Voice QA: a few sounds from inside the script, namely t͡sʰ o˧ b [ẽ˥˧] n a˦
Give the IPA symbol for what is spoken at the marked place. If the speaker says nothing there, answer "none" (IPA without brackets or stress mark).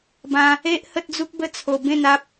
ẽ˥˧